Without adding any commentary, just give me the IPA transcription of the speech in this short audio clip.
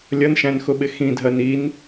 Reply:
lʲ ʌ n ʃ æ̃ n x ʊ ɓ ɪ x ĩ dʱ ɜ n i n

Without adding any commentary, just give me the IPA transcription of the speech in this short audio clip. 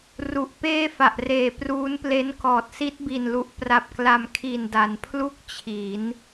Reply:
r u˨˩ ʔ p eː˥˩ f a˨˩ ʔ r eː˨˩ p r uː˦˥ n p l e˦˥ n k ɔː˨˩ t̚ s i˦˥ t̚ b i˨˩ n l u˨˩ ʔ p r a˨˩ p̚ k l a˨˩ m kʰ i˨˩ n d a˩˦ n pʰ l u˥˩ k̚ t͡ɕʰ i˩˦ n

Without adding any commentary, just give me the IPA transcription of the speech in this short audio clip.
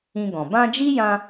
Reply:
ĩ˧ ɡ ɔ̃˨ b ã˧ d͡ʒ i˦ j ã˧

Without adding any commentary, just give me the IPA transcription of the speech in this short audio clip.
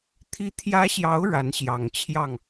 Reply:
t̪ʰ i˧˥ t̪ʰ j ä˧˥ ɕ j ɑ˧˥ ʊ̯ ɻ a˧˥ n ɕ j ɑ˨˩ ŋ t͡ɕʰ j ɑ˥˩ ŋ

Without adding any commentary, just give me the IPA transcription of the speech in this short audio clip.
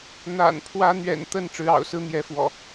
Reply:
n̪ a̰˨˩ n pʰ w ä˨˦ n̪ ɥ ɛ̰˨˩ n t̪ ə˥˨ n ʈ͡ʂ ɻ̩˨˦ ɑ̰˨˩ ʊ̯ s ɹ̩˦ n̪ j ɛ˨˦ f w ɔ̰˨˩

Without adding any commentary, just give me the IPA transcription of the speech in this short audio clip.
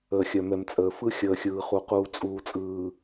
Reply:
əː˨ xʲ œ˨ m ɛ˨ m t͡sʼ əː˨ f ɯ˦ xʲ əː˨ xʲ ɯː˨ χ u˨ q uː˨ t͡sʼ uː˨ t͡sʼ ɯː˨

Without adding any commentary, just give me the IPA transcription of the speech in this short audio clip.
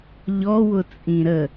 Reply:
ʎ ɔ w ʊ t͡sʼ ĩ ɾ ə

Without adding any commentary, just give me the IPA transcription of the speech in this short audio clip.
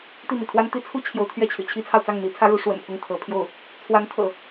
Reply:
t̪ i˥˩ n̪ ḭ˨˩ t̪ʰ w a˥ n t̪ i˥ t͡sʰ u˥ t͡ɕʰ j o˧˥ ʊ̯ t̪ʰ ɥ ɛ˥˩ t͡ɕʰ y̰˨˩ t͡ɕʰ i˥ t͡sʰ ɑ˨ ʊ̯ t͡s ɑ˥˩ ŋ n̪ i˧˥ t͡sʰ ä˥ ɻ u˧˥ ʂ w ə̰˨˩ n pʰ ʊ˥˩ ŋ t̪ʰ ɤ˧˥ pʰ j o˥˩ ʊ̯ | t͡sʰ w a˧˥ n t̪ʰ ɤ̰˨˩˦

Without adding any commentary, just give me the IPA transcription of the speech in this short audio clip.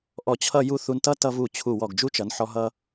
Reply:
ʔ ɔ˧˩ t͡ɕʰ ʌ˥˧ j u˥˧ θ u˧ n t ʌ˥ t ʌ˧ v u˧˩ t͡ɕʰ u˧˩ w ɔ˧˩ ɡ d͡ʒ u˥ t͡ʃ ʌ˩˧ n ħ ɔ˧ ɦ ʌ˧

